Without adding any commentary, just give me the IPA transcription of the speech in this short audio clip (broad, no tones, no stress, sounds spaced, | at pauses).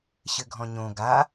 ɕ ɘ ɡʱ ɔ̃ ɲ õ ɡ a